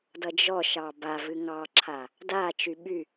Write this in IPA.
d ʌ d͡ʒ ɔ ʃ ɑ b a v ɨ ŋ ɑ ǁʰ a | d a t͡ʃ y ɓ y

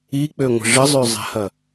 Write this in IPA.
i k͡p ø ŋʷ ə̤ ʐ ə zˤ ø zˤ ɛ̤ h ɐ

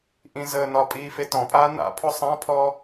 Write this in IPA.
ʔ ĩ z əː n ɒ pʼ iː f e t ɔ̃ pʼ aː n a̰ pʰ ɔ sˤ ã pʰ ɔ

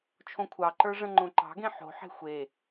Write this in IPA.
t͡ʃʰ õ kʷʰ ɑ ǃ ə˞ ʐ ə̃ ŋ͡ǃ õ ǃ ɑ̤ ɡ ẽ ħ o̤ ħ e̤ xʷ e

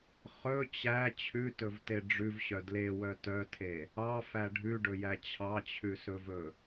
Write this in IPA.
χ ɵ t͡ɕ æ t͡ɕʰ ʉ t ɵ v t e ɖ͡ʐ ʉ v ɕ œ d l e w œ t œ tʰ e | ɑ f æ ɖʱ ʉ ɖ ɵ j æ t͡ɕʰ ɑ t͡ɕʰ ʉ s ɵ v ɵ

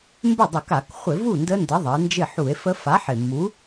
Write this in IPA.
m b ɪ˥˩ dˤ ɵ˧˩˧ k a˧˩˧ k χʷ ɪ˧˩˧ v u˥˩ n d ə˦˥ n d ə˨˥ ðˤ ə˩˧ e̯ n d͡ʒ ɪ˥˩ ħ u˧˩˧ e̯ f ə˦˥ f a˨˥ ħ ɪ˨˩ mː u˨˥

